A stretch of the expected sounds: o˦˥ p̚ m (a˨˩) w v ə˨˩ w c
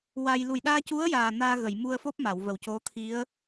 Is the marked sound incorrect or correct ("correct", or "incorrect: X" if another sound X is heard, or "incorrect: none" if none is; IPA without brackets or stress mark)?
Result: incorrect: a˨˩˨